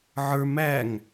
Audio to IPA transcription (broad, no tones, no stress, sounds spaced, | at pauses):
ʕ ə˞ m æ ŋ